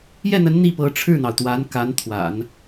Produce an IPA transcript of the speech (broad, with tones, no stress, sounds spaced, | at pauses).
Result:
j ɛ˥˩ n̪ ə˧˥ n n̪ i˥˩ p ɤ˧˥ ʈ͡ʂʰ ɻ̩˥˩ n̪ ɑ˩ ʊ̯ t̪ w a˧˥ n k a˧˥ n t̪ʰ w a̰˨˩˦ n